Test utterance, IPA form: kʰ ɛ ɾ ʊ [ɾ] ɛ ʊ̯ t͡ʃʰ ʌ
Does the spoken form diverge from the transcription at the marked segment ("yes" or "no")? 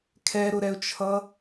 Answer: no